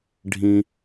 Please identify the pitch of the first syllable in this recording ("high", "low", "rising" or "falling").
low